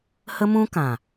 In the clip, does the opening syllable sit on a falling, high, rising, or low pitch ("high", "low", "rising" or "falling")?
high